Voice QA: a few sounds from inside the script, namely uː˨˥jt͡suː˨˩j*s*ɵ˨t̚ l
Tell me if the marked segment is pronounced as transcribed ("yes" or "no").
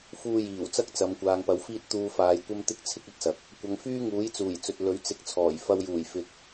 no